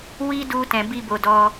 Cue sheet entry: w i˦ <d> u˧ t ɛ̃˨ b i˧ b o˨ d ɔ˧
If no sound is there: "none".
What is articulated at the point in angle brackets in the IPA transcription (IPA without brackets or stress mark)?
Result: d